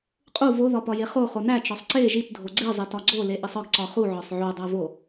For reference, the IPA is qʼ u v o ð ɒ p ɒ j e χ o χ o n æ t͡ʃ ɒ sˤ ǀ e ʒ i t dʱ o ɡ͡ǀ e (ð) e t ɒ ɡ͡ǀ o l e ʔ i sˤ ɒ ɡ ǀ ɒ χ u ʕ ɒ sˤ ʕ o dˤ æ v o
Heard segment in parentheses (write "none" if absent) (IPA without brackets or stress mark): zˤ